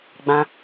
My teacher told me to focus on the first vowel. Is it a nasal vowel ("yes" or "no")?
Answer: yes